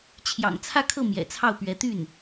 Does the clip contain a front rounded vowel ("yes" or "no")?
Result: yes